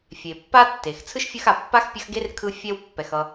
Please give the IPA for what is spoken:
fʲ e˩ pː a˥ tː e˩ x t͡sʰ ɯ˥ ʃ fʲ ɯ˦ x a˨ pː a˥ x pʲ ʌ˦ x ɡ e˥ r kʰ ɯ˥ fʲ ɛ˦ w pː ɛ˩ x ʌ˨

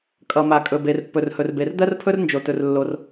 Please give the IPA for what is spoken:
kʼ ʌ˩ m a˩ kʼ ɵ˩ b e˩ r pː ɵ˩ r h ɵ˩ r b e˩ r d̪ ɜ˥ r pʰ ɵ˥ r n d͡ʒ o˩ t ɵ˩ r lː o˩ r

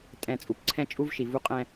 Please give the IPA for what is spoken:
tʼ ɛ̃˨ t͡sʼ u˨ p ǀʰ ɛ̃˦ t͡ʃʼ u˦ v ʃ i˨ v u˦ qʼ ɛ̃˦

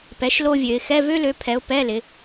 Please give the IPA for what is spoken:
p ɛ˨˦ ʃ l o˥ vʲ ø˨˦ ɪ̯ x ɛ˧˥˧ v ø˥ l ø˨˦ pʰ ɛ˨˦ ʊ̯ p ɛ˧˥˧ l ɪ˨˦

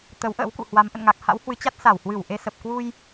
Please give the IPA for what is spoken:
t̪ ə˨˦ w ʔ ə̰ː˧˥ w k ṵ˧˨ h w a˨˦ m ʔ ə̰˧˨ n ŋ a˨˩ k̚ h a̰˧˥ w h w ɨ˨˦ t͡ɕ a˦˥ t̚ s a˧˩ w h w ɨ˧˩ w ʔ e˧ s ə˨˩ p̚ k w u˧ j

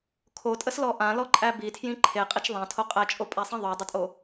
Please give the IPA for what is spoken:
kʰ o tʼ ə s l ɔ ʔ ã l ɔ ǃʼ æ b i tʰ j ĩ ǃʰ e qʼ i t͡ʃ ðˤ æ̃ tʰ o qʼ æ t͡ʃʼ o pʼ a sˤ ĩ ðˤ o dˤ ə tʼ o

